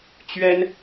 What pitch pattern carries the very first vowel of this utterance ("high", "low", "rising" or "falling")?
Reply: high